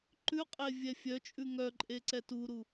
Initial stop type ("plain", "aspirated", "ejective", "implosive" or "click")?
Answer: click